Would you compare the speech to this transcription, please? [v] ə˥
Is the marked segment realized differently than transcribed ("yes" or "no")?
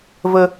no